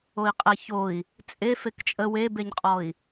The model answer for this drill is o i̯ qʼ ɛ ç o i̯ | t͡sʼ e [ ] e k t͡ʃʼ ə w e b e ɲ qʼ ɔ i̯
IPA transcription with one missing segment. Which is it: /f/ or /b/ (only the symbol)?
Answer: f